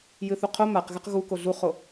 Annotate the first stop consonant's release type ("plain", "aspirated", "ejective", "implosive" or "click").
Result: aspirated